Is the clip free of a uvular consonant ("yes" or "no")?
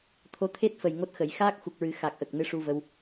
yes